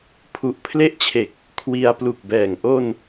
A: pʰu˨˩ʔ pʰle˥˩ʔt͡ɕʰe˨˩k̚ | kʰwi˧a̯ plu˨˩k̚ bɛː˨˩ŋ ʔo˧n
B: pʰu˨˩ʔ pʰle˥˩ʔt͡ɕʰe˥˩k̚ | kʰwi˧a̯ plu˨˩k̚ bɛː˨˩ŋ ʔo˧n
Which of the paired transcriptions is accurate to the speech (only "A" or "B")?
A